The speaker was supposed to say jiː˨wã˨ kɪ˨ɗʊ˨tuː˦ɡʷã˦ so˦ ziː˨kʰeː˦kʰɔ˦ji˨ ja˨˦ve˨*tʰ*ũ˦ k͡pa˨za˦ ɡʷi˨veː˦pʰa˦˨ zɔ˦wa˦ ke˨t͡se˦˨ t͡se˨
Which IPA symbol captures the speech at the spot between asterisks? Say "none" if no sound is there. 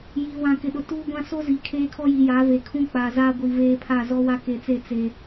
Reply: kʰ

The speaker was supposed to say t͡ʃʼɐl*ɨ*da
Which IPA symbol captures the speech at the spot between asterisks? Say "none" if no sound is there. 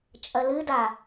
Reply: ɨ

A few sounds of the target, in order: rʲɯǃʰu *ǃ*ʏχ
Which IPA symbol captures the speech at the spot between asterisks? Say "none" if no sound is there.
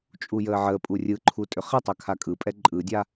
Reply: tʼ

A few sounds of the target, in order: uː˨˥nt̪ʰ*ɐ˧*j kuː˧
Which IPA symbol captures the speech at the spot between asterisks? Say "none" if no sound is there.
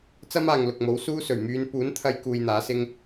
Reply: ɐ˧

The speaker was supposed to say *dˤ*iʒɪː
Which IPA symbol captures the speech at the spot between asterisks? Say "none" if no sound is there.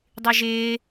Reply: dˤ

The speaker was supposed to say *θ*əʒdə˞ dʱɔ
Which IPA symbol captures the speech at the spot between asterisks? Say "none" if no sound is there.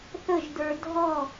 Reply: θ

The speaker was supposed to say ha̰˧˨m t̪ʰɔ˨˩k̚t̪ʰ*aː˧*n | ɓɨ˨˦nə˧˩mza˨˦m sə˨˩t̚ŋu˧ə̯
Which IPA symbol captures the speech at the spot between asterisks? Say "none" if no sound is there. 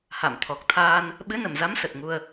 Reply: aː˧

